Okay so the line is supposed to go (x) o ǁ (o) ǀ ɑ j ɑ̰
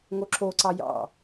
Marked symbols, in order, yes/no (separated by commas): no, yes